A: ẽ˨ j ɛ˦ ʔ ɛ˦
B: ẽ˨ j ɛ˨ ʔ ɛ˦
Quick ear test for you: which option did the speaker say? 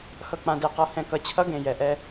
B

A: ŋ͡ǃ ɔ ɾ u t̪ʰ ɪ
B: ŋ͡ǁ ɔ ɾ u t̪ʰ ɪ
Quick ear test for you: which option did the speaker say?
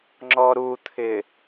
B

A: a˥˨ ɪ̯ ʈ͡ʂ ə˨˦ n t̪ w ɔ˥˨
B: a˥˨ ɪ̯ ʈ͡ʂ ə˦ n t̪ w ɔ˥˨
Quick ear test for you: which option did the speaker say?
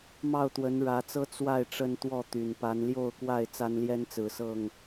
B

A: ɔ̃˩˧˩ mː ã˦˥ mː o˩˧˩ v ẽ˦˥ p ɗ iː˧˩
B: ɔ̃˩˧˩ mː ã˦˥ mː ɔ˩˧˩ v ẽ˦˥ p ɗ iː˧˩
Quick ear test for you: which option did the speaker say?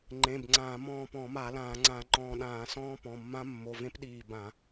A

